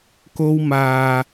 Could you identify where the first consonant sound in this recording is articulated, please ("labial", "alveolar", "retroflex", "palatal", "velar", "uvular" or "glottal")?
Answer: velar